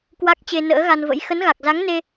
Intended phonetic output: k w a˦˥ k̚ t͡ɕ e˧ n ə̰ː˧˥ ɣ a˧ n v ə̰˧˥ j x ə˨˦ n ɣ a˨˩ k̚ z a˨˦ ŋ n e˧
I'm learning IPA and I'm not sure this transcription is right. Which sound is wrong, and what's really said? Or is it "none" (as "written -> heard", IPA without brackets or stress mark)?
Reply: none